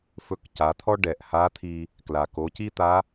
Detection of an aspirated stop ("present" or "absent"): present